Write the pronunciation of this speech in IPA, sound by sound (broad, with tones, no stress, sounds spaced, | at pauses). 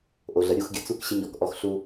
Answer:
ʔ o˨ ɮ ə˨ ɾʲ u˦˨ x ɡʲ ə˨ t͡s u˦ k ɕ ɪ˦ ɲ ɔ˨ k ʔ ɔ˦ x ɬ u˦